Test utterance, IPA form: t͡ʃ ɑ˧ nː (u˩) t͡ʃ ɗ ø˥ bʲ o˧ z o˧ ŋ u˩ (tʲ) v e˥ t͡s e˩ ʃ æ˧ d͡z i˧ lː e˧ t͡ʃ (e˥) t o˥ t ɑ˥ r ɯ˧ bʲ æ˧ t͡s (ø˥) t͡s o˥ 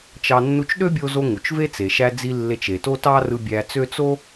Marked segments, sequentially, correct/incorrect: incorrect: u˧, incorrect: t͡ʃ, incorrect: e˩, correct

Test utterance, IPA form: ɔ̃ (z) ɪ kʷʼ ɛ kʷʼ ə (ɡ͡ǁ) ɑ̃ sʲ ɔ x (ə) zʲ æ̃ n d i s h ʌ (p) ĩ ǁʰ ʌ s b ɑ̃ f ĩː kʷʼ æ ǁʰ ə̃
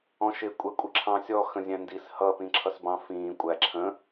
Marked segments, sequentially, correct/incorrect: incorrect: ʃ, incorrect: ǁʰ, incorrect: ə̃, correct

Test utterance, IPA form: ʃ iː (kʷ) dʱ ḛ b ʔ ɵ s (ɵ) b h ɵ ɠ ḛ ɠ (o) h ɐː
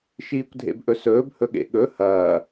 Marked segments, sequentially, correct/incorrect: correct, incorrect: ɵː, incorrect: ɵ

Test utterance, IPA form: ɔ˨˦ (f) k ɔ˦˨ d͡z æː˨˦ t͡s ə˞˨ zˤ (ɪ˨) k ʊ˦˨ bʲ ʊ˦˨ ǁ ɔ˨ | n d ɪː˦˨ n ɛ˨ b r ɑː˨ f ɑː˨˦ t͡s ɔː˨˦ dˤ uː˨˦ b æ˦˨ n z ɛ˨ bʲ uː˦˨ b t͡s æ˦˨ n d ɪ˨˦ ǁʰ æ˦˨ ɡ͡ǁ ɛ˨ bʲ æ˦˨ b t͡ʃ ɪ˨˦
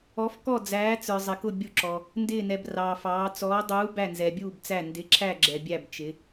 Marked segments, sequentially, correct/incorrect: correct, correct

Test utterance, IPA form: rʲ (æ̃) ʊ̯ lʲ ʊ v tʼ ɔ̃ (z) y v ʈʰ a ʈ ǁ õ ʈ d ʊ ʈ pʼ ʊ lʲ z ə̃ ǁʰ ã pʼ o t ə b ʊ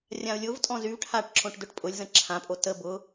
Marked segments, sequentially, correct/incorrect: incorrect: ã, correct

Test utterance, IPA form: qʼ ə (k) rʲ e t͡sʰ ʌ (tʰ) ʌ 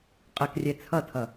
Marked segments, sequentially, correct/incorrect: correct, correct

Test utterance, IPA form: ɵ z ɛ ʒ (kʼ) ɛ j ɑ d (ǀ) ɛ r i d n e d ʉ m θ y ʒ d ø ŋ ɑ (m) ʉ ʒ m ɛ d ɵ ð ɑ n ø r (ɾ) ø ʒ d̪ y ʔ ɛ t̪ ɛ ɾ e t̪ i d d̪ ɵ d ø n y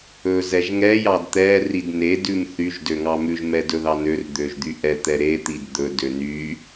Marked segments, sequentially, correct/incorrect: incorrect: ŋ, incorrect: t̪, correct, incorrect: d̪

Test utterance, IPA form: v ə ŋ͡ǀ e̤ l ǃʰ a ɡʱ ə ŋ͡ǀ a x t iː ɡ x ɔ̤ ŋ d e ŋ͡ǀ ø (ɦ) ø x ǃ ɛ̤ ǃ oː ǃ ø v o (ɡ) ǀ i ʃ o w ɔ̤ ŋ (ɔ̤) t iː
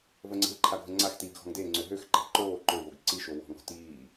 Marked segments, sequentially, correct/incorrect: correct, correct, correct

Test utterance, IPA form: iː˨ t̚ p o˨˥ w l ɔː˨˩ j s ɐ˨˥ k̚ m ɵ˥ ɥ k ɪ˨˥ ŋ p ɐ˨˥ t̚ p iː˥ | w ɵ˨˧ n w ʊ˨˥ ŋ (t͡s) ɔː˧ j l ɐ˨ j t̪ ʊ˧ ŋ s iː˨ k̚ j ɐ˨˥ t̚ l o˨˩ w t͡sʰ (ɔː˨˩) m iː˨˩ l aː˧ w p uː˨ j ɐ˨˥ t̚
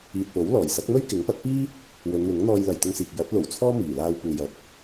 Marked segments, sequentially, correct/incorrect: incorrect: n̪, incorrect: ɔː˥

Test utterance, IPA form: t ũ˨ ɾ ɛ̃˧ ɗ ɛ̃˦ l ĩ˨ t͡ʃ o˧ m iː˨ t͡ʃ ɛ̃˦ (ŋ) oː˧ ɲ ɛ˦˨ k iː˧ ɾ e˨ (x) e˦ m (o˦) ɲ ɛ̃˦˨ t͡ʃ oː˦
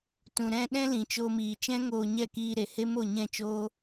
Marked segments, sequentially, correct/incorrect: correct, incorrect: h, incorrect: o˦˨

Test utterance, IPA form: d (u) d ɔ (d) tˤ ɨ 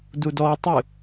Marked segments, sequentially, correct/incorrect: correct, incorrect: none

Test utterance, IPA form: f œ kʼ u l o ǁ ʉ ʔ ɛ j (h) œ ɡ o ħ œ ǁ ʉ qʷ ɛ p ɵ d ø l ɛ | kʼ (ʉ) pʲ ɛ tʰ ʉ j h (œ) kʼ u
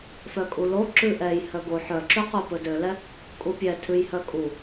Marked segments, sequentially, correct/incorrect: correct, incorrect: u, correct

